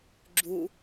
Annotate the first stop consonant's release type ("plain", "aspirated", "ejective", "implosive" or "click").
click